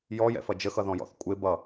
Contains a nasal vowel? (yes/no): yes